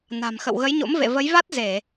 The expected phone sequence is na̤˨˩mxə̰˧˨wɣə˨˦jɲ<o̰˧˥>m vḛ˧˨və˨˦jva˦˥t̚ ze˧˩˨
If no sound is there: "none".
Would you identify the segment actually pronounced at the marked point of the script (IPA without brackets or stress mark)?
o̰˧˥